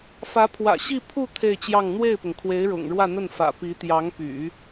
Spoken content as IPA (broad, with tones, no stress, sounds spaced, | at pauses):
f ä˧˥ pʰ w ä̰˨˩ ɕ i˥˧ pʰ u˥˧ t̪ʰ e˥˧ ɪ̯ t͡ɕ j ɑ˥˧ ŋ n̪ w e˥˩ ɪ̯ p ʊ˩ ŋ kʰ w e˧˥ ɪ̯ ɻ ʊ̰˨˩ ŋ ɻ w ä˥˧ n̪ ə˥˩ n f ä̰˨˩ p i˧˥ t̪ j ɑ˧˥ ŋ p y̰˨˩˦